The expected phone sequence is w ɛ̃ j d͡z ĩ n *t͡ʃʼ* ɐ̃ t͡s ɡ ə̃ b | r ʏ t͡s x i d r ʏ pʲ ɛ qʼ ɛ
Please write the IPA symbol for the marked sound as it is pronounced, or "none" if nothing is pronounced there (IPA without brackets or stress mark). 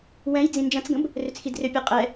d͡ʒ